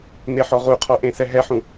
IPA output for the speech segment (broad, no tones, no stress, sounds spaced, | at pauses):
n e ħ ɔ ʁ u qʰ ɔ ʔ ẽ s ɛ ɦ ɛ ħ ũ